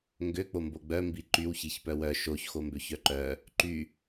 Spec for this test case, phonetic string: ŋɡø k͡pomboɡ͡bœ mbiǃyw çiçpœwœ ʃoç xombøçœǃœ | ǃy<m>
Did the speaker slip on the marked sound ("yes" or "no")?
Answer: yes